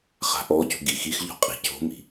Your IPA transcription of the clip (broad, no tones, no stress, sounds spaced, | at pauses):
χ a̤ ʔ ɔː c ṳ ɡ i x i x ʎ ɔ̤ qʼ i̤ c o̤ m i̤